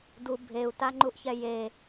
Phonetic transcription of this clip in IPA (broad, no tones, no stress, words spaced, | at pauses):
du bʱeu̯taŋ͡ǃuʔçɛ je